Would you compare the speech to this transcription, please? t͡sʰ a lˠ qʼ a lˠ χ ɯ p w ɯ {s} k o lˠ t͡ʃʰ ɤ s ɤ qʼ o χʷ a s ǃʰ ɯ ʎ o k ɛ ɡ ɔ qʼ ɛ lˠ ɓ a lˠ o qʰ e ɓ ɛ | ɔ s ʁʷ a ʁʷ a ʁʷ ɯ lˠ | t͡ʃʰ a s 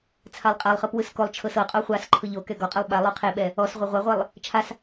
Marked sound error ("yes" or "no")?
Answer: no